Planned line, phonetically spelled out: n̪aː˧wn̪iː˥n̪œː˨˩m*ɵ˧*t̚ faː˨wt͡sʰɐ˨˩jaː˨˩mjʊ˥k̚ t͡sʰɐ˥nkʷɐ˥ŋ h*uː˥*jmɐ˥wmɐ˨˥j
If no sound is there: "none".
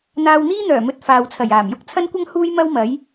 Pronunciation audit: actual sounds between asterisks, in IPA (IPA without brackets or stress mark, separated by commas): ɵ˧, uː˥